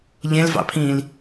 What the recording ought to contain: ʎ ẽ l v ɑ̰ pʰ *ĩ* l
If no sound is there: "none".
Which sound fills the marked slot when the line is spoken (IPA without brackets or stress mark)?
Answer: ĩː